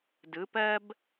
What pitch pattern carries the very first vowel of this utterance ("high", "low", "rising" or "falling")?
rising